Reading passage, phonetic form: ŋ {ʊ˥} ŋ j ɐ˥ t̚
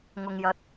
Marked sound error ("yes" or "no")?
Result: no